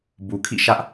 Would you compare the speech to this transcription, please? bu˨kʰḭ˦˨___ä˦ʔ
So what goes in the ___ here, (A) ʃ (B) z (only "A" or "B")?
A